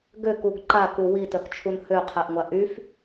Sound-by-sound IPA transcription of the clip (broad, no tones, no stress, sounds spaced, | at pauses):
ɡ ø k u ɡ ǃ a k u w i t œ k t͡ʃʰ u n h ø qʰ ɛ ʔ ŋʷ a ʔ y f